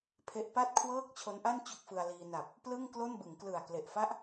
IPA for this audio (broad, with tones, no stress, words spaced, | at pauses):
pʰe˦˥ʔ pa˥˩t̚kʰwɤː˥˩k̚ t͡ɕʰo˦˥nʔa˥˩n t͡ɕo˥˩k̚fɯ˧a̯liː˧ na˨˩p̚ | plɯ˥˩ŋklo˥˩nbɯ˩˦ŋ klɯ˨˩a̯kle˨˩ʔfa˥˩ʔ